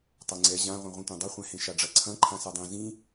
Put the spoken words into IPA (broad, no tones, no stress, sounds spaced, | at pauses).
tˤ ɐ ŋ͡ǀ ɛ ʑ ã ʁʷ ẽ ʁʷ ĩ tʷ ã dˤ ʌ χʷ ɛ̃ h ẽ ʃ a ɖ͡ʐ ɐ ǀʰ ɐ̃ ǃʰ ã s a dˤ ẽ z ĩ